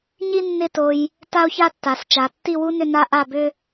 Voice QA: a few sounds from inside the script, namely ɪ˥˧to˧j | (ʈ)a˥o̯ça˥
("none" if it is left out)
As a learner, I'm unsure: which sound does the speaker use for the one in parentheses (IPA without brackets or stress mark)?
t